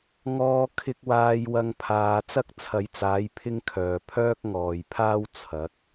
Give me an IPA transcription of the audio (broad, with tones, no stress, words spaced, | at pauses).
ŋɔː˧kʰɪ˧k̚ waː˧jwɐ˧ŋpʰaː˨˧ t͡sɐ˥k̚t͡sʰɐ˨˧jt͡saː˨˥j pʰɪ˥ŋkʰœː˨ pʰœː˥k̚ŋɔː˨jpʰaː˥w t͡sʰɐ˨˥k̚